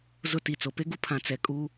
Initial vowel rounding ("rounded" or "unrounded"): rounded